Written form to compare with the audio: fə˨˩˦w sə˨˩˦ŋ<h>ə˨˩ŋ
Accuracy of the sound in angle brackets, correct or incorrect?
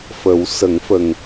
incorrect